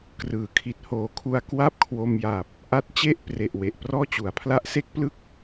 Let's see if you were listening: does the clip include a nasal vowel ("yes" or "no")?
no